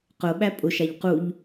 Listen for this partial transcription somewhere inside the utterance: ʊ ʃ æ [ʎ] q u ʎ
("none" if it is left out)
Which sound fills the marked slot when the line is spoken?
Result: ʎ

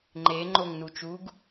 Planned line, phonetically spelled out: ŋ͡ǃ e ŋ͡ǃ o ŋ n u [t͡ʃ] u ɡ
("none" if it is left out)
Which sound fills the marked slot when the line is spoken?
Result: t͡ʃ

